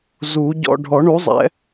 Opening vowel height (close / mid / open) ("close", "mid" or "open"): close